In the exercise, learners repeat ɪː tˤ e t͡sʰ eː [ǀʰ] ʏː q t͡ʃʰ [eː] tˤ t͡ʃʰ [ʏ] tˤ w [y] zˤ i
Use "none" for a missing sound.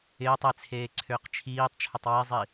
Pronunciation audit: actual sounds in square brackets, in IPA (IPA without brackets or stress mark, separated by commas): ǀʰ, iː, ʏ, i